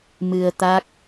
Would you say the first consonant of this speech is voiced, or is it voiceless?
voiced